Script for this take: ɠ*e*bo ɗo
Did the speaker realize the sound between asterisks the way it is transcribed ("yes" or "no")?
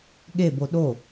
yes